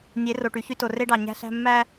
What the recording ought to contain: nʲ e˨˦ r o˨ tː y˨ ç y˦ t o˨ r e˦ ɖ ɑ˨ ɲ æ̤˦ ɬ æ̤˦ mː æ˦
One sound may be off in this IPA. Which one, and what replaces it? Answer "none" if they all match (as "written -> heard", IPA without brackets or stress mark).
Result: tː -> ʈ